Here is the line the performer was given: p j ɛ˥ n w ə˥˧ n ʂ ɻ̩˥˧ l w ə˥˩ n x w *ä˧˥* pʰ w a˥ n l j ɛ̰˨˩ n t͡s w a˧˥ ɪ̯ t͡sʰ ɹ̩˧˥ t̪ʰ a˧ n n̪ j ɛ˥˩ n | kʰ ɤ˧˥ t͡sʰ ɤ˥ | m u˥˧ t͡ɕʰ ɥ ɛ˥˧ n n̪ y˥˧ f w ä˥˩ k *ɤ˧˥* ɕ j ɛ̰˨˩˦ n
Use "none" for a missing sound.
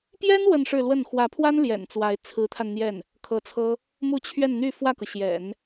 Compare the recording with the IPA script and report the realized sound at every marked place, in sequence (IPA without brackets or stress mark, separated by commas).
ä˧˥, ɤ˩